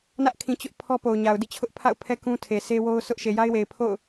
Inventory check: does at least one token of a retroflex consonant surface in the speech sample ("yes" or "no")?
no